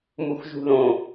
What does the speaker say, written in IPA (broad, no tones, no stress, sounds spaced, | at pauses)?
m u x ʒ ṳ ð õ